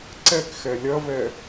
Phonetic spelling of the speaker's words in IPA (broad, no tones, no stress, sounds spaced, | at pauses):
ǀ ɛ k x ɛ lʲ ɐ v ɛ